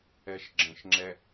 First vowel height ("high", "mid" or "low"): mid